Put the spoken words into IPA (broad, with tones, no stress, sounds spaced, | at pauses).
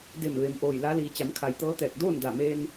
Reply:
d e˧˩ m ʋ e˩ m ʔ oː˧˩ j l a˧˥ l iː˩˧ t͡ɕ a˩˧ m kʰ a˩˧ j t̪ ɤː˧˥ t̪ ɛː˧˩ k̚ d oː˥˨ n d a˧˩ m eː˧ n